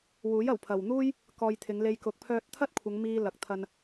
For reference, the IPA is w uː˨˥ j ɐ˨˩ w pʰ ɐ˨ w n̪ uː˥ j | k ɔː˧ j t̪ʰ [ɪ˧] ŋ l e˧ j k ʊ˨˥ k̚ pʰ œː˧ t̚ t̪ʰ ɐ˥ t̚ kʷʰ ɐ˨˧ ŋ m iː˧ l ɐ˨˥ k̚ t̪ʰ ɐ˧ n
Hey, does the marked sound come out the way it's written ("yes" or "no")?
no